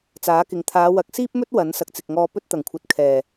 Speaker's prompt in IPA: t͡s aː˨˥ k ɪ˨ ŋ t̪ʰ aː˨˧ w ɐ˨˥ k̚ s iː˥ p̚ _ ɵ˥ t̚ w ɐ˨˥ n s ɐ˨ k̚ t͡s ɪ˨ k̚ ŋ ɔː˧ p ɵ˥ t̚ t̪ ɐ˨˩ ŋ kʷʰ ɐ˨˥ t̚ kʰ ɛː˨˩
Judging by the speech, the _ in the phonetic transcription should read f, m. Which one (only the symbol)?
m